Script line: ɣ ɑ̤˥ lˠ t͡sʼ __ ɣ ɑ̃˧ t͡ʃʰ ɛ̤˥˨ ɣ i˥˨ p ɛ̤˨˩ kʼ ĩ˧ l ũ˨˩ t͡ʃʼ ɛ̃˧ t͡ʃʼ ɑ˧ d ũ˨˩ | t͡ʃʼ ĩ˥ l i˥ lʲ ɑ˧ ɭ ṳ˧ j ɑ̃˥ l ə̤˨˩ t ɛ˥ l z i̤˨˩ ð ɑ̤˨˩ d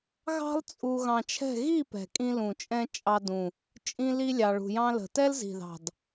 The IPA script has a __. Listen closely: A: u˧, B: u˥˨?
A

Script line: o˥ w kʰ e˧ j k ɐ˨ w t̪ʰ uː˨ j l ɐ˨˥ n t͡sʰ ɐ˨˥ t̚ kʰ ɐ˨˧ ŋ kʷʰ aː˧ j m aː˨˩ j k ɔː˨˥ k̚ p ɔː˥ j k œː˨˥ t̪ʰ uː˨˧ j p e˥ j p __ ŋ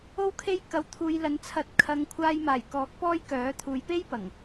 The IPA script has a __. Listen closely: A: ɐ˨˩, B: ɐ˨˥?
A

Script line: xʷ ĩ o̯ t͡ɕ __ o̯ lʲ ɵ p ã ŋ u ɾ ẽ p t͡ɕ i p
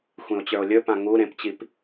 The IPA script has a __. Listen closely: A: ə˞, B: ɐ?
A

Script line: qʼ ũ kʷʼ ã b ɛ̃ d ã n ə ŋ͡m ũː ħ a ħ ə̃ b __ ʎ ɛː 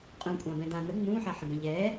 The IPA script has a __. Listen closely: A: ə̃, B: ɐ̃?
B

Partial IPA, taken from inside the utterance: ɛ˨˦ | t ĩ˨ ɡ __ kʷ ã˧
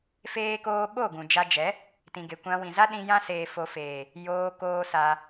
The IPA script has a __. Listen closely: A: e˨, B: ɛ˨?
A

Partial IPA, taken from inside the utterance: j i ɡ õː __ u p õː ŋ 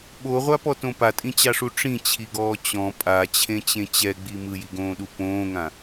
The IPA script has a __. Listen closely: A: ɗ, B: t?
A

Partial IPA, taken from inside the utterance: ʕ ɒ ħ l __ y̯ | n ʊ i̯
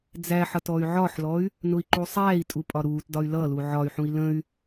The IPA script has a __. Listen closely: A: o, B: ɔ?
B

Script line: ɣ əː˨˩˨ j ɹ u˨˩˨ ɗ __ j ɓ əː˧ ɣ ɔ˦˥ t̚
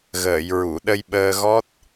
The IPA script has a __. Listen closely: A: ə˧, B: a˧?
A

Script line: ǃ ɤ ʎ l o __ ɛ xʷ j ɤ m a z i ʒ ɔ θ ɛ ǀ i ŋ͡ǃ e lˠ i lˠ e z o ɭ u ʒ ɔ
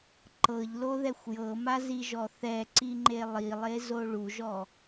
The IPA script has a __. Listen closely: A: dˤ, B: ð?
B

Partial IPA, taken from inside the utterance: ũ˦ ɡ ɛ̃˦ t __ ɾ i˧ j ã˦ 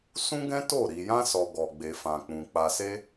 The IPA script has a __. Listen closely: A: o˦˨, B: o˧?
A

